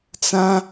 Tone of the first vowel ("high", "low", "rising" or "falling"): high